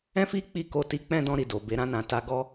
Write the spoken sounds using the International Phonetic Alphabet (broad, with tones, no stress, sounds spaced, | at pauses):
ɛ̃˦ f i˦ k͡p i˦˨ k o˧ t i˧ k͡p ɛ̃˦ d ɔ̃˧ ɾ i˨ d o˨ b e˨˦ ɾ ã˧ n ã˨ t a˧ ɡ ɔ˦